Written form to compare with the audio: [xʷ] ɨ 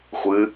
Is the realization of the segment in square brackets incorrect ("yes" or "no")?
no